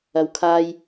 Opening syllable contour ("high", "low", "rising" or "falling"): rising